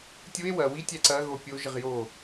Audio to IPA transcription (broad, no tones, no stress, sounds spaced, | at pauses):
tʲ u e̯ w ɐ w i tʲ æ ǀ ɐ ɣ o pʲ o ʒ ə ʁ j o